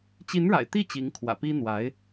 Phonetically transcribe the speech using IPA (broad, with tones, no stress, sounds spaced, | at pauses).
t͡ɕ i˧˥ n ɻ a̰˨˩ ɪ̯ t̪ i˥˩ t͡ɕ i˧˥ ŋ kʰ w ä̰˨˩ p i˥ n̪ w a˧˥ ɪ̯